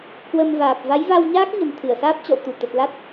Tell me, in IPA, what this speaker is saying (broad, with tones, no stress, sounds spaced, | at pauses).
k w ə˧ m v aː˨˩ p̚ v a˨˦ j v a˧ w ɲ aː˦˥ k̚ ɲ ə̤˨˩ n t̪ʰ ɨ˧˩ ə̯ s aː˦˥ p̚ t͡ɕ ɔ̰˧˨ w t̪ u˧˩ t̪ ə˨˩ t̚ l a˦˥ t̚